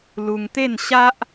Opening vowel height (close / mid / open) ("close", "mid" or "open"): close